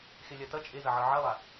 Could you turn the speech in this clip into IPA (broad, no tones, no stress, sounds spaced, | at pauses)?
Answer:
x e lʲ a t ɐ t͡ʃʼ e z ɐ ʕ ɤ ʕ ɐ lˠ a